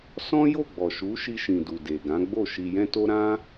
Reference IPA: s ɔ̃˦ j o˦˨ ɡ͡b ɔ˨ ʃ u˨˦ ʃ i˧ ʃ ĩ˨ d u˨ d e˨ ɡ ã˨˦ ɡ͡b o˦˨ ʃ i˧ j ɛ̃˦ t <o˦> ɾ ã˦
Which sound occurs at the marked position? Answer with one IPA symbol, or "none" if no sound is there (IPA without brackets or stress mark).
o˦